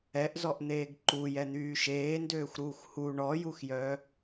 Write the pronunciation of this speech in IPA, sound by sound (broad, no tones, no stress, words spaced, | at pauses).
ɛʔzɔʔn̪eːɡ ǃujɛn̪yː ʃeːndøːxʷɾuːxʷ hu ɳɔjuxjœ